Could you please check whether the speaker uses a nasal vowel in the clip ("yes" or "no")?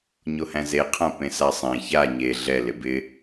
yes